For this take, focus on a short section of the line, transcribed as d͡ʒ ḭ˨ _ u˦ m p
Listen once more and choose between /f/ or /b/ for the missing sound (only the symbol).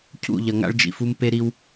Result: f